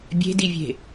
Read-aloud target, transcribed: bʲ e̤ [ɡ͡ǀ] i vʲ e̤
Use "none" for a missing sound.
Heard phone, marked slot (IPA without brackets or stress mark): d